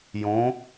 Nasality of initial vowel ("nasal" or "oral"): nasal